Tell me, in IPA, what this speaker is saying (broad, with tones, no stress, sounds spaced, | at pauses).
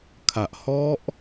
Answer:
kʰ a˨˩ ʔ h ɔ˦˥ ʔ